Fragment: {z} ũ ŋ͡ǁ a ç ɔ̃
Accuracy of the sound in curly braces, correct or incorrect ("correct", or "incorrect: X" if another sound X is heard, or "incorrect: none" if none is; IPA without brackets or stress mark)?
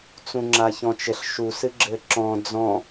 incorrect: t͡s